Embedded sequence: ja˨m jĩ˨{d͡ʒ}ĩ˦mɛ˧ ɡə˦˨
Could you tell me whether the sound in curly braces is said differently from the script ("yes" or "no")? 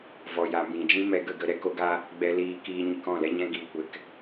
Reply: no